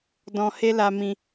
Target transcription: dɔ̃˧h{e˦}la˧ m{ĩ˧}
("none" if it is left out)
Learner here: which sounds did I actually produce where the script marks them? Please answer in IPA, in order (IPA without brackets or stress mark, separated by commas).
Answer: e˦, ĩ˧